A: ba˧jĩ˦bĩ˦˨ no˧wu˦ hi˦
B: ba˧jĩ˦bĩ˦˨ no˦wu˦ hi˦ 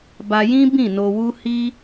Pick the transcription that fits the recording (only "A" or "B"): A